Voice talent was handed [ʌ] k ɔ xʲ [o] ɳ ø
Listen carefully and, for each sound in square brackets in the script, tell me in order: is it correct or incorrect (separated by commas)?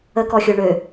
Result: incorrect, correct